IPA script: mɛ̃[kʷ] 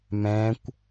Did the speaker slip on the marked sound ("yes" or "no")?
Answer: no